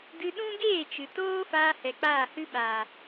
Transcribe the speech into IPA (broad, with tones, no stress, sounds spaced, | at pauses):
d ɨ˧ ɗ ũ˦ ɡ eː˦˨ t͡ʃ ɨ˨ t oː˦ f aː˧ h ɛ˨ k͡p aː˦˨ h ɨ˦ ɓ aː˨